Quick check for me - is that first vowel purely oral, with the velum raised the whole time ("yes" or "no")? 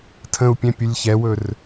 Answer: no